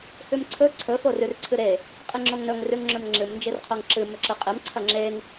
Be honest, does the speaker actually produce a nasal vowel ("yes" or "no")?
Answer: no